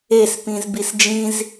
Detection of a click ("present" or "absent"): absent